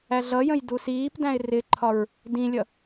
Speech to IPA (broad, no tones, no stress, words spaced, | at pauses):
æɮʌjə̃j dusiːpdæ̃ɪ̯ rɪǃʰɒɹ | dĩlʲʌ